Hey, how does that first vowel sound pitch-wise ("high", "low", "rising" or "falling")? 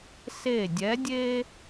falling